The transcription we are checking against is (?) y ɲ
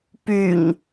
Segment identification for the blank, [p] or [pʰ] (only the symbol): p